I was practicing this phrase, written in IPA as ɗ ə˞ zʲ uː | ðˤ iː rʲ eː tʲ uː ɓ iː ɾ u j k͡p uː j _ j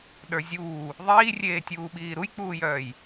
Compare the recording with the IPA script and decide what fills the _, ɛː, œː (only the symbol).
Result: œː